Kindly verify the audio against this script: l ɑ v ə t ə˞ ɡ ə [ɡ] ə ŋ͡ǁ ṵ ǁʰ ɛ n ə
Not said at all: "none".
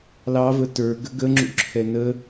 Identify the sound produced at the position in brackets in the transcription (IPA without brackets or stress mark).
ɡ